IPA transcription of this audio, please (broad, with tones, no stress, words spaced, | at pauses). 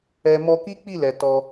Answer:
ɛ˧ mɔ˧ki˦k͡pi˦˨lɛ˨ tɔ˧